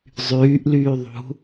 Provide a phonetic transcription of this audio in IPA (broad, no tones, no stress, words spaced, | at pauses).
zˤyːʔlyː ðˤṳ